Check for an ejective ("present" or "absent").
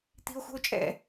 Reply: present